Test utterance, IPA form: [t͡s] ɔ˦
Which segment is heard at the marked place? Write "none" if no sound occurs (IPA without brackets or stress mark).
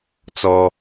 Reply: t͡s